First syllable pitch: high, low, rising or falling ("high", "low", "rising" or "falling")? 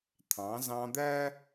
rising